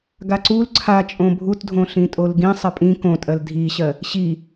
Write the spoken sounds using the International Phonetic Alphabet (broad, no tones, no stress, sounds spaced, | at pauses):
ɡ a ǀ u l ǀʰ a t͡ʃʼ õ bʱ u t dʱ õ ɬ ĩ tʼ o l ɡ ĩ sˤ ɜ pʼ ĩ k õ tʼ ɜ l dʱ i ɕ ɜ | ɕ i